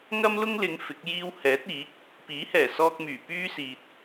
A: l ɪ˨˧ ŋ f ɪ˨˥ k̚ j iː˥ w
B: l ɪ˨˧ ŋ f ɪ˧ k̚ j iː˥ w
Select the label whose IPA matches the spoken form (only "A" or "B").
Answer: A